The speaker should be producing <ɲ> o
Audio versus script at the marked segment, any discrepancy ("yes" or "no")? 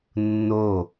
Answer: yes